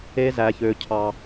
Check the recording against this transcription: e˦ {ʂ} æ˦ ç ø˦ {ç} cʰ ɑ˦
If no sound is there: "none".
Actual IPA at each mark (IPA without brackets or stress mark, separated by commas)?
z, none